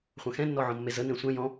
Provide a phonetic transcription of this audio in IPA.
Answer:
χʷɐ̃xɛ̃nːɔ ʕɔ̃mːezənẽ sʷɛ̃ jɔ̃

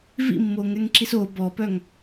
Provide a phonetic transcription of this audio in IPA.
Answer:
vḭmːoŋɛŋǁis o bɔpœŋ

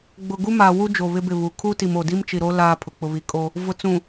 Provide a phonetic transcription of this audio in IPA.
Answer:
ɡ͡bʊ˨ɡu˦maː˨ wu˦d͡ʒo˨ βɪ˦bɪ˦˨βu˨ kʰu˦ti˨mo˨di˦m t͡ʃi˨ɾo˦ laː˦pʰʊ˨ k͡pʊ˨βi˨kʼo˦ | vʊ˨t͡sũ˨

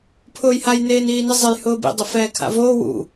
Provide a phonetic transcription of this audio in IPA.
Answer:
pʰʊːjhaj neːniːnɪzˤej hʊːbḭ dˤʊfɛːkʰa̰voː wṵ

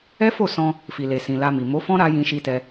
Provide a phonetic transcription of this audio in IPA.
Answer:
ɛ˦fo˦˨sɔ̃˧ | fi˨le˨ sĩ˨la˧mi˨ mo˨˦fɔ̃˦ɾa˧ jĩ˧ʃi˧tɛ˧

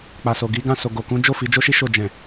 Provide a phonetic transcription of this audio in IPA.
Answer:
k͡pa˨so˨ɡi˨˦ɡã˦˨ so˨ɡo˨kũ˨˦d͡ʒo˦˨ fi˨˦d͡ʒo˦ʃi˦ ʃo˦˨ d͡ʒɛ̃˨

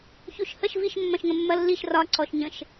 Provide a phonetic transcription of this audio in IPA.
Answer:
çuʃhəʃ viʃ mːɐ̃ʃŋə̃mːɐlːiʃ rɒ ǀɔʃɲə̃ʃ

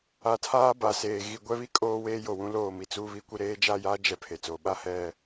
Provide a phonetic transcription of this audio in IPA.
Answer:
a˨tʰaː˦ba˨ seː˨ ɣi˨ɡʷɛ˦βi˦ kʼoː˦weː˦ jo˨wũ˨˦ loː˦˨mi˨t͡suː˦βi˦ kʷɪ˦ɾeː˦ d͡ʒa˦˨jaː˦d͡ʒɛ˨ pʰe˨t͡soː˨ ɓa˦ hɛ˦˨

